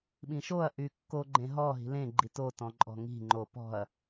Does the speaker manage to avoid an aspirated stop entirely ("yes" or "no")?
yes